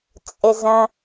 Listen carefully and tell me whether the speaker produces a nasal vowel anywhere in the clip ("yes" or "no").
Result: yes